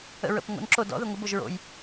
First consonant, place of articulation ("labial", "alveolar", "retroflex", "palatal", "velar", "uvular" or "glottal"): alveolar